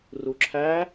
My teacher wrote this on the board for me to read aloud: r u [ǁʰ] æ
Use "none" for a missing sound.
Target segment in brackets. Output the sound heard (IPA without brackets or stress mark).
ǁʰ